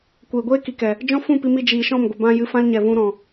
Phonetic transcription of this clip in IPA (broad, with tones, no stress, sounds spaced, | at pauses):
kʷ eː˨ ɡʷ eː˦ k i˨ k ɛ˨ | d͡ʒ ɔ̃˦ f ũ˦˨ p i˧ m i˧ d͡ʒ iː˨ ʃ ɔ̃˦˨ m ɡʷ ə˨ b ã˧ j ɨ˧ f ã˦ l ɲ ɛ˨ v ũ˧ ɾ ɔ̃˨